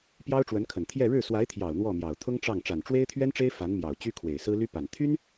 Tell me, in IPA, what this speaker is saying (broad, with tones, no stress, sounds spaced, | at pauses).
p j ɑ˥ ʊ̯ ʈ͡ʂ w ə˧˥ n kʰ ə˨˩ n t̪ʰ j ɛ˥˧ ɻ ɻ̩˥˩ s w a˧˥ ɪ̯ t̪ʰ j ɑ˨˩ ʊ̯ n̪ w ɔ˥˩ m j ɑ˨˩ ʊ̯ t̪ʰ ʊ˥ ŋ ʈ͡ʂ ɑ˥˩ ŋ ʈ͡ʂ a˨˩ n ʈ͡ʂ w e˥ ɪ̯ t̪ʰ ɥ ɛ˥ n ʈ͡ʂ e˥ ɪ̯ f a˧˥ n m j ɑ˨˩ ʊ̯ t͡ɕ y˥ kʰ w e˨˩ ɪ̯ s ɹ̩˥ l y˥ p a˨˩ n t̪ʰ y˥ n